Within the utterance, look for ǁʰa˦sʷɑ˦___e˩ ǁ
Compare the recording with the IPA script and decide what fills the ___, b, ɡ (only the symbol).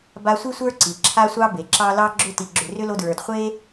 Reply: b